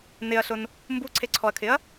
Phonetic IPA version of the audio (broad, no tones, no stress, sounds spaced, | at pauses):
n ɪ ɐ̯ ɬ ʊ n | m b u ǀʰ e ǀʰ ɔ ɐ̯ kʰ ɪ ɐ̯